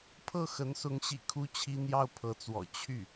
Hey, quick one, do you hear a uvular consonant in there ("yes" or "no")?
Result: no